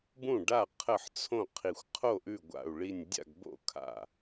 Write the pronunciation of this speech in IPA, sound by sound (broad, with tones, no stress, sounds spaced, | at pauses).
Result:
b ũ˥˩ ɖ a˥˩ qʰ ə˥˩ ħ t͡sʰ õ˥˩ qʰ i˧˩ xʷ qʰ o˥˩ ʔ ʉ˥˩ ɡʷ a̰˧˩ u̯ ɭ i˧˩ nʲ dʲ a̰˥˩ ɡ b o̰˥˩ kʰ a̰˧˩